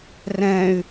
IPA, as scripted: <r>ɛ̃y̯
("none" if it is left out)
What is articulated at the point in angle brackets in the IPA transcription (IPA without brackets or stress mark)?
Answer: r